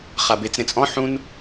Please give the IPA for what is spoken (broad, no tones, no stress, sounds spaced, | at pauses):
χ a b e t͡s ɾ ẽ t͡sʼ ɔ̃ ħ ũ n